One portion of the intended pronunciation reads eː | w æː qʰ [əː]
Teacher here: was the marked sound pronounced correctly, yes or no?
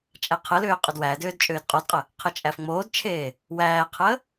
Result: yes